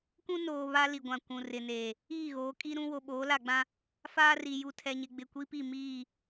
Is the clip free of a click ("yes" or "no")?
yes